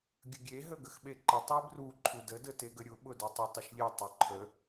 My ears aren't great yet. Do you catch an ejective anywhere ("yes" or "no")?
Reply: no